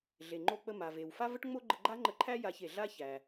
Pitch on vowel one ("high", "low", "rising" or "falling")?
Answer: low